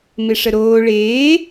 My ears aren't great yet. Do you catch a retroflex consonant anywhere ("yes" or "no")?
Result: yes